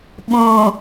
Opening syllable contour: low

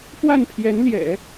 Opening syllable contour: falling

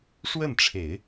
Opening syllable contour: falling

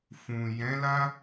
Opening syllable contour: low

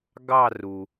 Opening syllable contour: falling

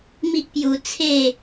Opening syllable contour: high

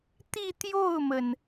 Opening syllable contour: falling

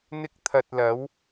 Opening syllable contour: high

